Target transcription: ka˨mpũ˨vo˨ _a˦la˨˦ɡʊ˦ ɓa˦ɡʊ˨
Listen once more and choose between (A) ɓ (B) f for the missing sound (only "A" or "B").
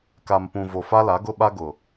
B